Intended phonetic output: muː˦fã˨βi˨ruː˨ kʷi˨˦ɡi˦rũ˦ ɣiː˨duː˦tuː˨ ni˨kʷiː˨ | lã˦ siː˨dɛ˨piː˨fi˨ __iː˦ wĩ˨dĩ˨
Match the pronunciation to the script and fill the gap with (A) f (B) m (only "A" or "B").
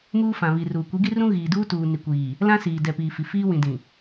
A